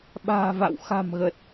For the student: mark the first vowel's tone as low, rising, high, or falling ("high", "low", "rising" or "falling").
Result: low